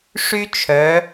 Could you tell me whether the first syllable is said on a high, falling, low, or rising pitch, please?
high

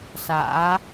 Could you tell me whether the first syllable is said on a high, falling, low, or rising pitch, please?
rising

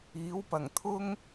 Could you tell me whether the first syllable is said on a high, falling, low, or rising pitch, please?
rising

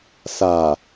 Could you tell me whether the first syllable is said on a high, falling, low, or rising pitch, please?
low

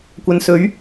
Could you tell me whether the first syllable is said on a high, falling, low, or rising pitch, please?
low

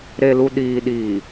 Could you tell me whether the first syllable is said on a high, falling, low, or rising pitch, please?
low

